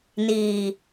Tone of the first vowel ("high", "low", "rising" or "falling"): low